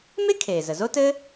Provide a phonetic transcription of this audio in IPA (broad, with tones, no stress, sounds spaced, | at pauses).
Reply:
m e˥ kʰ eː˩ z ə˩ z o˥ t ɘː˥